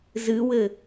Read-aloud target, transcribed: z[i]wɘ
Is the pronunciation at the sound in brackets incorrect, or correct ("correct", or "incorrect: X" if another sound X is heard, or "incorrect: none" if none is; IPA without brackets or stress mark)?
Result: incorrect: ɨ